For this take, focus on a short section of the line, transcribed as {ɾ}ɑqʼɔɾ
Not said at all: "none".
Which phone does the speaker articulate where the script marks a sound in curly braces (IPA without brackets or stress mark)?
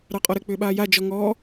ɾ